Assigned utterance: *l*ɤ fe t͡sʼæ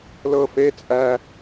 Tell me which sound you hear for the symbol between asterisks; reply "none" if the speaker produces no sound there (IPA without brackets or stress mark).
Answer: l